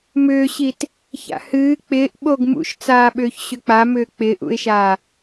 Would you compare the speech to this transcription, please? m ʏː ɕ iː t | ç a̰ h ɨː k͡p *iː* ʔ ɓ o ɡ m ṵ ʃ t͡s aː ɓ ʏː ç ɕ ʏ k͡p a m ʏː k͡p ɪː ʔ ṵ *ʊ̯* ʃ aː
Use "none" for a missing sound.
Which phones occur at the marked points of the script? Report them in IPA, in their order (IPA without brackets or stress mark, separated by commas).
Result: ɪː, ɪ̯